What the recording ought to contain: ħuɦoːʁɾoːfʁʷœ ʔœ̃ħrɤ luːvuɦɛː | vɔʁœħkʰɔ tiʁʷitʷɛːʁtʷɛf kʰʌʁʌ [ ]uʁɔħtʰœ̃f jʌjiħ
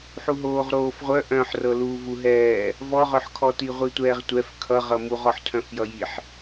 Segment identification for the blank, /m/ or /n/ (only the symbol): m